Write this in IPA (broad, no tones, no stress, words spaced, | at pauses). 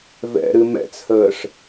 vɛ̰ɾɨ mɛ̰t͡shəːʂ